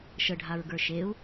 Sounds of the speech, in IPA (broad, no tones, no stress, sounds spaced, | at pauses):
ʃ ə ɖʱ a ɹ ɡ ə˞ ʃ e u̯